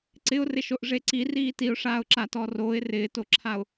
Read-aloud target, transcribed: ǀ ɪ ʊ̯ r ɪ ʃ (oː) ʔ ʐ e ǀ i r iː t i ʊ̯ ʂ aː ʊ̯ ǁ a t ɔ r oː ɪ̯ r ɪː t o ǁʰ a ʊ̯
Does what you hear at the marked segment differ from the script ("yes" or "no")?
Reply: yes